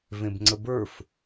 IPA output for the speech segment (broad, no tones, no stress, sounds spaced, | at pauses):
v ẽ b ŋ͡ǀ ə b ə˞ f